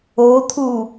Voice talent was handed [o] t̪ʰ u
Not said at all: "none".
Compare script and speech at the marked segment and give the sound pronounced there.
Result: o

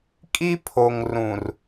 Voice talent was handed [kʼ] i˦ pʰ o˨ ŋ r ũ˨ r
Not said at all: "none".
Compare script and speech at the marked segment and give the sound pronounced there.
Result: kʼ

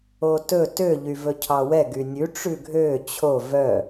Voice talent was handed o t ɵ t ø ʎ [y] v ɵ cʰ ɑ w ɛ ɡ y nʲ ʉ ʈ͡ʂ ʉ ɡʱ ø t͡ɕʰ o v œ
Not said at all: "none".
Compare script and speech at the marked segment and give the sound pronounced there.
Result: y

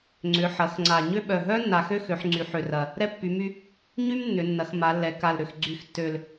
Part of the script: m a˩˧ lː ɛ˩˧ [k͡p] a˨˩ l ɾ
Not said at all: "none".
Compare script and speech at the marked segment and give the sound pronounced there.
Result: k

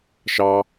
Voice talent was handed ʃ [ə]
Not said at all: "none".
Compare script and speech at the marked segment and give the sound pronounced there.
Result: ɑ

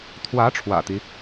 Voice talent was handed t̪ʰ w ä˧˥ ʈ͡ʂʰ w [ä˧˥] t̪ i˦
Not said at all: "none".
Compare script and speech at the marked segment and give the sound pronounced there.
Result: ä̰˨˩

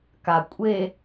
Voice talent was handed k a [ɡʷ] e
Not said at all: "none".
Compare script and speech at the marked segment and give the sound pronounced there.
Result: kʷʼ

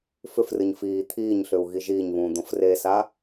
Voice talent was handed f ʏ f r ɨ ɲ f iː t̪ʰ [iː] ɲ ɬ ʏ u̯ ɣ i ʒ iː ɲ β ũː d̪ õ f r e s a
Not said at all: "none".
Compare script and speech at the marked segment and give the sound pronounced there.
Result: iː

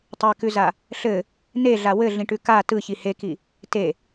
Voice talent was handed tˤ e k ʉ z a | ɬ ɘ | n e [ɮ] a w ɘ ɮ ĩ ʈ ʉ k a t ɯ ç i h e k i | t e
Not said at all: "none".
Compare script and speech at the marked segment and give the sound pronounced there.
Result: ɮ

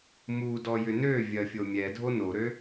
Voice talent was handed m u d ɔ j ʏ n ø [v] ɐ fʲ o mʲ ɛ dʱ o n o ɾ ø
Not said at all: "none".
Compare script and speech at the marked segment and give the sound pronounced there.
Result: vʲ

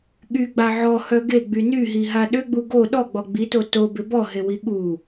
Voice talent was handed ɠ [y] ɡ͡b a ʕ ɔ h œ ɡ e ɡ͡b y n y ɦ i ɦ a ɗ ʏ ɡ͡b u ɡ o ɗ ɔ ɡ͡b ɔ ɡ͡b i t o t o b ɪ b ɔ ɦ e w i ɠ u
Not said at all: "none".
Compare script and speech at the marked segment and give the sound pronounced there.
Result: y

